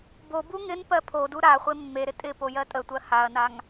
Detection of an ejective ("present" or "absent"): present